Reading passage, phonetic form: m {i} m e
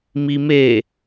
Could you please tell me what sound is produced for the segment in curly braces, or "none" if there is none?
i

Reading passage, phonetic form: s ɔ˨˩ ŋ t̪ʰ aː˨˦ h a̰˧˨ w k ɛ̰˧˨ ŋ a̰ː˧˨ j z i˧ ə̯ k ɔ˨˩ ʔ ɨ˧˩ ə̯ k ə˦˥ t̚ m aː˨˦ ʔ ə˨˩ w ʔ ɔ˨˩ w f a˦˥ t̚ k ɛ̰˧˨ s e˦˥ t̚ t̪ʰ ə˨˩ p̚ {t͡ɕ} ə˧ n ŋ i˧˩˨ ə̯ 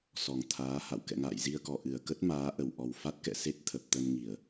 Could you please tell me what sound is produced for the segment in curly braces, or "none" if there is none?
t̪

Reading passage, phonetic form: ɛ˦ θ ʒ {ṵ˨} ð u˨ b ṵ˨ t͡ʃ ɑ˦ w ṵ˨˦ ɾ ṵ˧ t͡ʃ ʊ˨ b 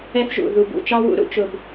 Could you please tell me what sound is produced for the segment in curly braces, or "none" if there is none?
ṵ˨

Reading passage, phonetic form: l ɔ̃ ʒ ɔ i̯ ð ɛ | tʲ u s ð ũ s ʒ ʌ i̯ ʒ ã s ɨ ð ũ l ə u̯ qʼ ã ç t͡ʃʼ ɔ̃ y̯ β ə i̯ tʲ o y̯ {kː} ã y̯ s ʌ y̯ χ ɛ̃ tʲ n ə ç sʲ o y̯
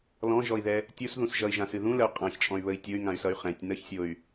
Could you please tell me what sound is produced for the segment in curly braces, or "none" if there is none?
ŋ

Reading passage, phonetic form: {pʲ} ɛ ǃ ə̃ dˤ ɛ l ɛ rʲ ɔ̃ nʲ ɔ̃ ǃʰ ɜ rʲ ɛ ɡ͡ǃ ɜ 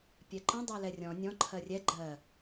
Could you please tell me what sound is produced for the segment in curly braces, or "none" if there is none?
pʲ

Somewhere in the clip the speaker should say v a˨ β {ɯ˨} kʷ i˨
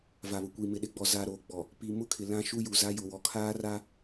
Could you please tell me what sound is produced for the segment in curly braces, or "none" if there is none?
ʊ˨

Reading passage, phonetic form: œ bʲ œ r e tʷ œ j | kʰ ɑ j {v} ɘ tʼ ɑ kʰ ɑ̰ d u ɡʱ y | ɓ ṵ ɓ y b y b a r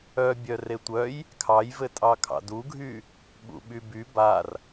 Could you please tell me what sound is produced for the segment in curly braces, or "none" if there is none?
v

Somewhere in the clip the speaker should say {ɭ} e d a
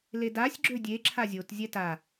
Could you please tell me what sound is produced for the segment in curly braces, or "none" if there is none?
l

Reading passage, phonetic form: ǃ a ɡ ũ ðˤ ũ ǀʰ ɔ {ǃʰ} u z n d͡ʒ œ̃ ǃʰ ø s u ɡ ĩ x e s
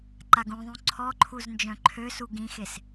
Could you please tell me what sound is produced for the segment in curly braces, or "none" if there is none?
ǃʰ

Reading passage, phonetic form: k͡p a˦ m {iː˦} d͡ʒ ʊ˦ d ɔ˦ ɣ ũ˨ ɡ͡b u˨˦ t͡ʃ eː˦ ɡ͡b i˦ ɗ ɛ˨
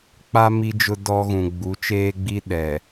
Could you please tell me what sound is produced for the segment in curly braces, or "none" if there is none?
i˦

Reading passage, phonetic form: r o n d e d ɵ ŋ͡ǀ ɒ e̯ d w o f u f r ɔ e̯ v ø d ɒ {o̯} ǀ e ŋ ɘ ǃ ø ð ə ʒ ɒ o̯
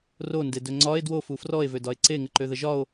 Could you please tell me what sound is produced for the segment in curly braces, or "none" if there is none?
e̯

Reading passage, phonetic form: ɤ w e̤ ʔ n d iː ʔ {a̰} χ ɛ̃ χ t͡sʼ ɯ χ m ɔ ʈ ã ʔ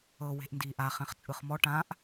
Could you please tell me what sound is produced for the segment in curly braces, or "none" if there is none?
a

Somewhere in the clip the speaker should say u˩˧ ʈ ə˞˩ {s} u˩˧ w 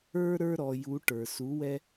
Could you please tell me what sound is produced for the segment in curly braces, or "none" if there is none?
s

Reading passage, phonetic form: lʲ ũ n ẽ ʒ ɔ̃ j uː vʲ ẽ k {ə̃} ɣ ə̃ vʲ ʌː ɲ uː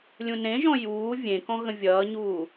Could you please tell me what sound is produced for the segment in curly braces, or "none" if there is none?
ɔ̃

